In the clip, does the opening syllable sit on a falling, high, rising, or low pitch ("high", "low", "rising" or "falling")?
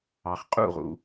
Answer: low